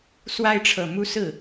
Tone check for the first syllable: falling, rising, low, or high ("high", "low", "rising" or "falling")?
high